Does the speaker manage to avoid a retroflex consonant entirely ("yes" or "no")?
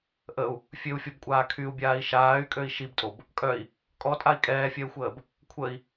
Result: yes